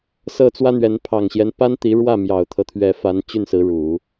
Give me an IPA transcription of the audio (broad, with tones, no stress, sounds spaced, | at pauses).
s ɤ˥˩ t͡s w ä˥ n̪ ɥ ɛ˧˥ n pʰ ɑ˨˩ ŋ ɕ j ɛ˦ n p a˥ n t̪ i˧˥ ɻ w ä˥˩ m j ɑ˨˩ ʊ̯ t̪ʰ ɤ˦ t̪ʰ ɥ ɛ˧˥ f a˧˥ n t͡ɕ y˥˩ n s ɹ̩˧˥ ɻ u˨˩˦